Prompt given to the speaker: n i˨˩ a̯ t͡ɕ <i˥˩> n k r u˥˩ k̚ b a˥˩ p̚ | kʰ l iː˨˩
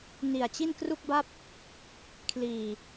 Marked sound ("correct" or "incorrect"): correct